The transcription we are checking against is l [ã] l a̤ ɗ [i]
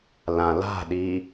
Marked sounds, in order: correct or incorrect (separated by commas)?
correct, correct